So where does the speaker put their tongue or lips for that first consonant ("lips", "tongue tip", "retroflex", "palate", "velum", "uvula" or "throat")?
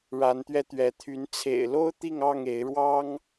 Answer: retroflex